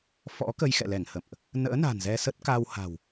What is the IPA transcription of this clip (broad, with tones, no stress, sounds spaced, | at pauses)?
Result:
f ɔ̰˧˥ k ə˧ j x ɛ̰˧˨ l ɛ˧˩ ŋ h ə̰˧˨ m ʔ | n ə̰ː˧˥ n a̤˨˩ n z ɛ˧ s ə˦˥ t̚ k a˧ w h a̤˨˩ w